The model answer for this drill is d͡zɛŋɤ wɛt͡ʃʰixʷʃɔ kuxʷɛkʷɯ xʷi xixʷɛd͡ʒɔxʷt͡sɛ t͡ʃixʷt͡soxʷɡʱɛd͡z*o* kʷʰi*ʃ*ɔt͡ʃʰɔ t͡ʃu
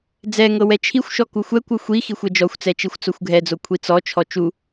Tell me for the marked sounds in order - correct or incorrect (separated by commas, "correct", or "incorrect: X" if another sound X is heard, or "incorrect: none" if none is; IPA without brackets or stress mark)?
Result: correct, incorrect: t͡s